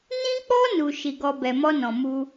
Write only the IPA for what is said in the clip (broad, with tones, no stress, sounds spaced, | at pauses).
n ĩ˦ k͡p ɔ˦ n u˧ ʃ i˧ ɡ ɔ˧ b ɛ˨ m ɔ˧ n ɔ̃˨ m u˧